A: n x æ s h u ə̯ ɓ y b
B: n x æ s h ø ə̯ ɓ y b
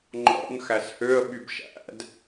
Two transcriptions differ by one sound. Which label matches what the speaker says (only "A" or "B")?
B